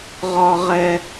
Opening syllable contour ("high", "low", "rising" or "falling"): high